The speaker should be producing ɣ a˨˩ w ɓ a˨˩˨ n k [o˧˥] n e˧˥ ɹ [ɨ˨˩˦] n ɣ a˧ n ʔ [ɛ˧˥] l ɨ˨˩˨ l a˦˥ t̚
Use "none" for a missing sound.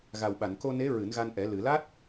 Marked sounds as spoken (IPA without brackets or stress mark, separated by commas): o˧, ɨ˨˩˦, ɛ˨˩˦